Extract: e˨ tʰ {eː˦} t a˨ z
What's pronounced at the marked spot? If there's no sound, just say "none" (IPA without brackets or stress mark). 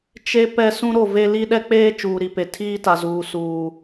iː˦